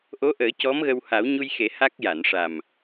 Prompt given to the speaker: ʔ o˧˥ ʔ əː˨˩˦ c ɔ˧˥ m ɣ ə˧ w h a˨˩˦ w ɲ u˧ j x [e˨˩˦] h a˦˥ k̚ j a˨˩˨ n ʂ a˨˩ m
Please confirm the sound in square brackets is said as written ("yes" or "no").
yes